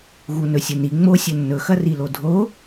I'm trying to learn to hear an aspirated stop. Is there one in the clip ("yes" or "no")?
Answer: no